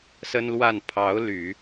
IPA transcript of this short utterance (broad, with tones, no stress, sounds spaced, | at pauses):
s ə˥ n l w a˥˩ n pʰ ɑ˧˥ ʊ̯ l y˨˩˦